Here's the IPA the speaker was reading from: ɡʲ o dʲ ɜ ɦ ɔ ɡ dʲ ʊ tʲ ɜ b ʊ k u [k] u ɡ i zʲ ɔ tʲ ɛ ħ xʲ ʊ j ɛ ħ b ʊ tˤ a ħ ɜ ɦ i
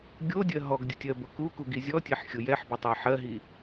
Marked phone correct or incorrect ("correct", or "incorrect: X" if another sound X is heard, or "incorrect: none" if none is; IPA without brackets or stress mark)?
correct